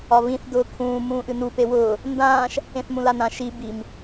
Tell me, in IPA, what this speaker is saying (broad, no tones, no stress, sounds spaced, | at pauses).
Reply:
ɒ β ĩ θ d ʊː kʰ ũː m ũː ʔ ɨ n u p e w ʊː | n d ãː ʃ | ẽ θ m ũ l a n ã ʃ i b i m